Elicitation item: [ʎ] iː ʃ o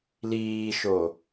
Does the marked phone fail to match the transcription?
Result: yes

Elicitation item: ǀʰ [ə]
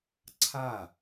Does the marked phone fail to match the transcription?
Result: yes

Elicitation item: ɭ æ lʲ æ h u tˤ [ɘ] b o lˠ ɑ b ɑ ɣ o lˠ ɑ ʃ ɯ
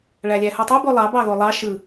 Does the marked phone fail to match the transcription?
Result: yes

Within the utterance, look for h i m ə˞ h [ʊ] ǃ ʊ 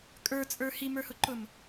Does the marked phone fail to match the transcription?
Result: no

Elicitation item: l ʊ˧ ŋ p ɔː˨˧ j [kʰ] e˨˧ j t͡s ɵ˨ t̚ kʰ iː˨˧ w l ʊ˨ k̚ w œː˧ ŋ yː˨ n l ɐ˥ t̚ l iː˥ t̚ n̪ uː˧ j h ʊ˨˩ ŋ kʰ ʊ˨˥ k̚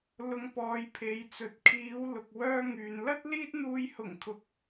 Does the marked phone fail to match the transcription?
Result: yes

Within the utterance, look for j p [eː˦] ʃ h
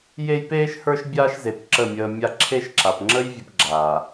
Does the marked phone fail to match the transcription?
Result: no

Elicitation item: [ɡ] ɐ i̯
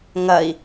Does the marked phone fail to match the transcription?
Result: yes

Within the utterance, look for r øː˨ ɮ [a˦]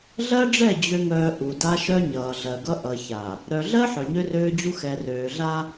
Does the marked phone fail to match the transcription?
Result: no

